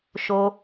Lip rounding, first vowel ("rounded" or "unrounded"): rounded